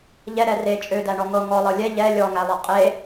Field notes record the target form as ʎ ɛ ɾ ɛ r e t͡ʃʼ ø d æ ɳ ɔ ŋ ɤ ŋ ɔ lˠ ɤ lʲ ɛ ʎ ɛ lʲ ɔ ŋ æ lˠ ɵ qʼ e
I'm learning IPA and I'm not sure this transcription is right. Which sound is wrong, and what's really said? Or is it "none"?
ɵ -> ɤ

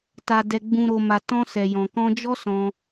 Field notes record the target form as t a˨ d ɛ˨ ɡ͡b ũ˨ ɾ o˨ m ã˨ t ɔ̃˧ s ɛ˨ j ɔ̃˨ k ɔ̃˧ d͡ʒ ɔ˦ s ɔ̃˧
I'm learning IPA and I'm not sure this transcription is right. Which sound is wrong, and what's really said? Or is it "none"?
ã˨ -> a˨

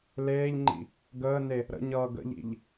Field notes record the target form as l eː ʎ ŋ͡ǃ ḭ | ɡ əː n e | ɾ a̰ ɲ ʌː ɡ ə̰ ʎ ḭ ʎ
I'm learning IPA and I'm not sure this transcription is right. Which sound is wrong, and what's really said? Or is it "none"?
a̰ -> ə̰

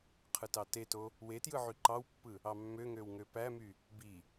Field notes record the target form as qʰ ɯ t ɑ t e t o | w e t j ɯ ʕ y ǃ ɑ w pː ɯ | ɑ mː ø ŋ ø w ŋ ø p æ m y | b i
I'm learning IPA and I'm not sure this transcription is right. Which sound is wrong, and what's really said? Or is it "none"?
none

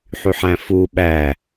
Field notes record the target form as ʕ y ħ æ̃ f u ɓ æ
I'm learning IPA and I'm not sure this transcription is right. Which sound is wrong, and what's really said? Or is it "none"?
ʕ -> ħ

